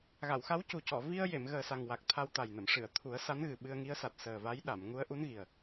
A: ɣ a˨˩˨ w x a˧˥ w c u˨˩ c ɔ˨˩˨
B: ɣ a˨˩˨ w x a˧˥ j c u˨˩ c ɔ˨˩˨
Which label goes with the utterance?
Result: A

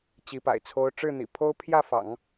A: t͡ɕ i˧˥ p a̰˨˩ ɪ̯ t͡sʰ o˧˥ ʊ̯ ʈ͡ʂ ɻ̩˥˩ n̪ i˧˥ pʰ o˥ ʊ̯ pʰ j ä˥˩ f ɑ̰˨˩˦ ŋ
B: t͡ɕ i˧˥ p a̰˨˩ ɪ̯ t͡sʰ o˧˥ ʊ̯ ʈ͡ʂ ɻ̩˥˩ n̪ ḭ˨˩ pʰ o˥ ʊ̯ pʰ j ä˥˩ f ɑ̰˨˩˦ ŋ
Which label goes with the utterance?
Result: B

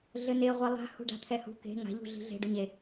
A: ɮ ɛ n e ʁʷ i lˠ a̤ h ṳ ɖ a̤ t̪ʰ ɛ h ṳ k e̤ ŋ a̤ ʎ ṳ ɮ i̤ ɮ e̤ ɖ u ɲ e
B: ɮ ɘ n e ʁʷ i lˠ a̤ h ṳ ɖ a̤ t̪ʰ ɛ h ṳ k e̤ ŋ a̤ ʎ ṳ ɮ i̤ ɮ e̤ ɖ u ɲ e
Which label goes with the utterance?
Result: B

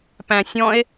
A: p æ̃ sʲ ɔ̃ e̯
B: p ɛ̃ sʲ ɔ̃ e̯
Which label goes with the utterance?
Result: A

